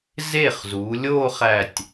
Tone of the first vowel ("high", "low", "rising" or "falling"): falling